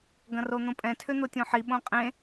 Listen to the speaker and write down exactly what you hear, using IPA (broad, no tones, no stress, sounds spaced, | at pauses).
ɡ ɐ̃ r o n̪ õ pʼ ɛ̃ tʰ ʏ n̪ o tʲ õ ħ i ɓ õ qʼ ẽ